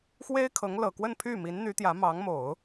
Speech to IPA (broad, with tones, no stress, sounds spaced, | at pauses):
x w e˥ ɪ̯ kʰ ɤ˧˥ ŋ l ɤ˨˩ k w ə˥˧ n pʰ y˥˩ m i˧˥ n n̪ y˧˥ t̪ j ä˧˥ m ɑ˧˥ ŋ m o˨˩˦ ʊ̯